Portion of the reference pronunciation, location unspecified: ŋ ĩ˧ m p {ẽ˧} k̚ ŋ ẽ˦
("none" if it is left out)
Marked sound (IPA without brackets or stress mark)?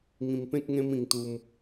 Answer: ẽ˦